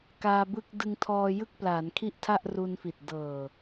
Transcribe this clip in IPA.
k aː˧ b ɯ˥˩ k̚ d ɯ˧ ŋ tʰ ɔː˧ j ɯ˥˩ k̚ p l aː˩˦ n kʰ i˥˩ ʔ tʰ a˥˩ ʔ r u˧ n f i˨˩ t̚ d ɤː˨˩

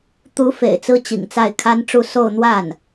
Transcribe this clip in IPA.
t̪ u˧˥ f ḛ˨˩ ɪ̯ t͡s ɹ̩˥ t͡ɕ ḭ˨˩ ŋ t͡s a˥˩ ɪ̯ kʰ a˥ n ʈ͡ʂ u˥˧ s o˥˧ ʊ̯ n̪ w a˥˩ n

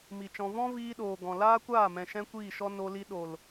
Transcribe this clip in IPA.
m i˨ t͡ʃ ɔ̃˧ v ɔ̃˦ v iː˦ ɗ oː˨ ɡ ɔ̃˨ l aː˦ kʷ aː˦˨ m ɛ̃˨ ʃ ɛ̃˦ kʷ iː˦˨ ʃ ɔ˦ n o˧ l i˧ ɗ o˨ l

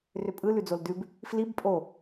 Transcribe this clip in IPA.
r ʏ pʼ ɯ l ʉ d͡z o l d ʉ b | f l i b pʼ o

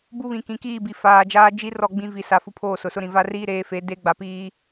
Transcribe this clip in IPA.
b u˦ β ĩ˨ k ĩ˨˦ k iː˦˨ b i˨ f aː˨ d͡ʒ aː˦ d͡ʒ i˦ r ɔ˦˨ ɡ͡b ĩ˦ v i˨ s a˨˦ f u˦ pʰ oː˦˨ s ʊ˨ s ʊ˦ ɾ ĩ˨ v a˦ r iː˦ ɾ eː˨˦ f e˨˦ d e˦ ɡ͡b a˨ p iː˦

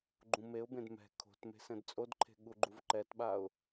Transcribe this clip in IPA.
ɡ͡ǃ ũ m e ʊ̯ b ẽ d m ɛ̤ kʰ o̤ t m e̤ s ɛ̃ d t͡sʼ o d ǃʰ e̤ ɠ u ɡ͡ǃ u v ǃ ɛ t ɓ a ʊ̯

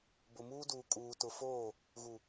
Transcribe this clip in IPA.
b ʊ˨ m uː˦ d uː˨ kʼ uː˨ t ʊ˨ f oː˦˨ | ɣ u˨

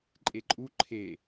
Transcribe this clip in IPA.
ǃʼ e ǃʼ u ǃʰ e

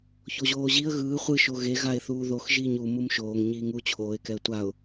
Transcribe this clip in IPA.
ç o ʑ oː ʑ i ə̯ ɣ ɯː χʷ ɯ ʃ o ɣ e ɣ a ɪ̯ θ uː ð o x ʒ iː ɲ u m u m ʃ oː ŋ ɲ iː ŋ u t͡ɕʰ oː ɪ̯ k ɛ ə̯ tʷ a ʊ̯

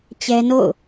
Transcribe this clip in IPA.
t͡ɕ ɛ˦ n o̰˦˨ ʊ̯

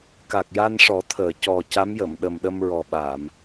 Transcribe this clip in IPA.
k a˨˩ k̚ j a˧ n ʂ ɔ˨˩˦ t̪ʰ əː˨˩˨ c ɔ˨˩ c a˧˥ m j ə˨˩˨ m ɗ ə˨˩ m ɗ ə˧ m ɹ ɔ˨˩ ɓ a˨˩˨ m

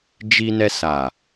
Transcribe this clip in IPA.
d͡ʒ i˧ n ɛ˧ s a˨

